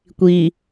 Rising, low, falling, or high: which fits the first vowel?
low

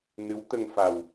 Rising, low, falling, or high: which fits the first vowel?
rising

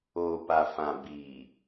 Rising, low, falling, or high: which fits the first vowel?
low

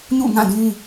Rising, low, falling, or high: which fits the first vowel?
falling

